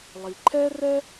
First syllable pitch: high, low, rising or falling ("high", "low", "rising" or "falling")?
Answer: low